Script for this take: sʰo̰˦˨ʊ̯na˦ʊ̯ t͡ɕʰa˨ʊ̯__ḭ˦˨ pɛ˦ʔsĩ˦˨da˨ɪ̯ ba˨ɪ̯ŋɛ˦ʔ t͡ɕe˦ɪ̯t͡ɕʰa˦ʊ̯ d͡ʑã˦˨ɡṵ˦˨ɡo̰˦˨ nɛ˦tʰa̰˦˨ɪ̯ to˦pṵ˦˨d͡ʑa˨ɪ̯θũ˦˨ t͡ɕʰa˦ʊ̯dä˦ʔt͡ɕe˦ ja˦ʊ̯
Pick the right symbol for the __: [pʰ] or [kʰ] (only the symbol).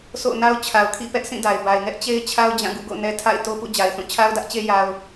kʰ